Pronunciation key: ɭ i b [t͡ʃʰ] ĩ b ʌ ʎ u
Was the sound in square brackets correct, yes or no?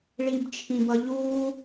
yes